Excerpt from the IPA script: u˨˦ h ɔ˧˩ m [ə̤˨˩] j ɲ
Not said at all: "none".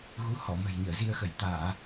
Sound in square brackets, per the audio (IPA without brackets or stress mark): ə̤˨˩